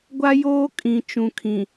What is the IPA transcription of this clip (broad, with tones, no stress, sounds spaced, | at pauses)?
ɡʷ a˦ j oː˦ kʼ ĩ˨ t͡ʃ ũ˨ kʰ ĩ˨